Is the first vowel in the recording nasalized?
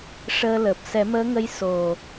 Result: no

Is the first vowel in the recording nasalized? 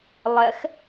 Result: no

